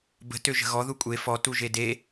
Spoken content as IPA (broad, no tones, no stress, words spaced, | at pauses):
bə̤ tøʒə̤ɣɔ ðukʷʼe fɔ tuʒede